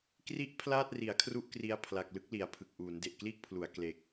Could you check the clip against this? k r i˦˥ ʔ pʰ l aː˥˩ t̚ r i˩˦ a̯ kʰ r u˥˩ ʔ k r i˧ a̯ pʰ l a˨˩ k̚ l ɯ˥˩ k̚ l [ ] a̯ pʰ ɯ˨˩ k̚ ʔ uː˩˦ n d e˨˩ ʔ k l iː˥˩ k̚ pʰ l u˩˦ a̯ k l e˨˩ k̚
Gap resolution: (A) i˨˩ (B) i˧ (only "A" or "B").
A